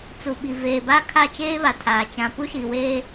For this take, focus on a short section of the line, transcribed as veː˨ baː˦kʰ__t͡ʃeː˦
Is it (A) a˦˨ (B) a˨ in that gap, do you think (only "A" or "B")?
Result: A